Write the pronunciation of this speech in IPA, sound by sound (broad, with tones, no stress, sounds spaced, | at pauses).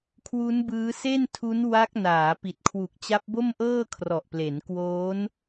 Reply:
kʰ w u˦˥ n b ɯː˦˥ s e˥˩ n tʰ u˦˥ n w a˦˥ k̚ n aː˩˦ p i˨˩ t̚ kʰ w u˨˩ k̚ t͡ɕ a˦˥ p̚ b o˥˩ m ʔ ɤː˥˩ kʰ r ɔ˨˩ ʔ p l e˩˦ n k w oː˦˥ n